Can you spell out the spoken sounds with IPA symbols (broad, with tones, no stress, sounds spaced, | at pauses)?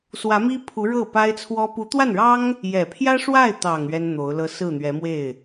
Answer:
s w ä˧˥ m i˥ pʰ u˧˥ ɻ ɤ˥˩ p a˥ ɪ̯ t͡sʰ w ɔ˥ p u˧˥ t̪ w a˥˩ n ɻ ɑ˥ ŋ | j ɛ˨˩ pʰ j ä˥ ʂ w a˥˩ ɪ̯ t̪ ɑ˨˩ ŋ ɥ ɛ˥ n n̪ o˧˥ ʊ̯ l ɤ˥ s ɹ̩˥˩ n̪ ɥ ɛ˧˥ m w e˥˩ ɪ̯